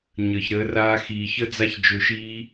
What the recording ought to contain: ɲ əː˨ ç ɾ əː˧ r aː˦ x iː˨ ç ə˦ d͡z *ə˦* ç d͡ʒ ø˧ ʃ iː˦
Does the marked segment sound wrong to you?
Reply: yes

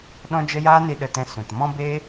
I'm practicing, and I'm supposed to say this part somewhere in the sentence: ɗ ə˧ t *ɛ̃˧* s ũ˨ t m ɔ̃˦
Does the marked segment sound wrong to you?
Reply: no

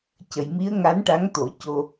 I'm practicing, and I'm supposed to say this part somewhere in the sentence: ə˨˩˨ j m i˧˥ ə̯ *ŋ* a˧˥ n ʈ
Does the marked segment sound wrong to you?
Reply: no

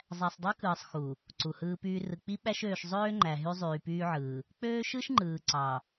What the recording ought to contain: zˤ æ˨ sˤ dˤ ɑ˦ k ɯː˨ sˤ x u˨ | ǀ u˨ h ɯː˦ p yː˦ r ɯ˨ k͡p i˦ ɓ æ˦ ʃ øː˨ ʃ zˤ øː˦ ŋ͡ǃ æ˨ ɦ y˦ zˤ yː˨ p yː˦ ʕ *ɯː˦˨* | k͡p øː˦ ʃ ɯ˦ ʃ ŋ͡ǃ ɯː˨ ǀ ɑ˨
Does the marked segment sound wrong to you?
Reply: yes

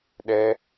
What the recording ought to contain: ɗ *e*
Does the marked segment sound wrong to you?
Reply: yes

